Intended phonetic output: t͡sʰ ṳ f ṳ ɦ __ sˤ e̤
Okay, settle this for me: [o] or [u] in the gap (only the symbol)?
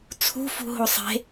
o